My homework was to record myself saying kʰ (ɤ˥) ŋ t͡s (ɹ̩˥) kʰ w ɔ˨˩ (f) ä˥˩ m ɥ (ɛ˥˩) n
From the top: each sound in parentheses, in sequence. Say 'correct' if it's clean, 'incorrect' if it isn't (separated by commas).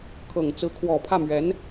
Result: incorrect, incorrect, incorrect, incorrect